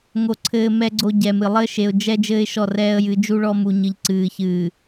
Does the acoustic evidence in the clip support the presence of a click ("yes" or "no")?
yes